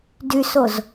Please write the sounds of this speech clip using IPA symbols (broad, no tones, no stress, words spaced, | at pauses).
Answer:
dysoz